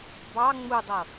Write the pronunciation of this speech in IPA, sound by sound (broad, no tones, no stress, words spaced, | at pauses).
bɑ ŋ͡mudˤɤ